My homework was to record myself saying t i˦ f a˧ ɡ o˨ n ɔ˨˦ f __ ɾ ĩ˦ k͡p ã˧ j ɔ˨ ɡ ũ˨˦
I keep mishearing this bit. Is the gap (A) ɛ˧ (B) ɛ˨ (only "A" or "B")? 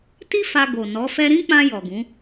A